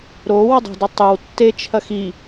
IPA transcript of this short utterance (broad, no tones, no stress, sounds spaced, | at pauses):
ɾ o w ə dˤ ə̤ d ɘ tˤ ɨ w tː e t͡ʃʰ ɐ x i